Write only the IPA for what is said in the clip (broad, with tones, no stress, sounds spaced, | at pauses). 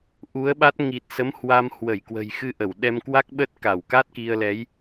ʔ u˨˦ ə̯ ɓ a˦˥ t̚ ŋ i˨˩ t̚ s ə˨˦ m h w a˧ m h w ə˧˩ j k w ə̤˨˩ j x ɨ˧ ʔ ə˧˩ w ɗ ɛ˧ m k w a˦˥ k̚ ɓ ə˦˥ t̚ k a˧˩ w k a˦˥ t̚ k i˧ ə̯ l ɛ˨˦ j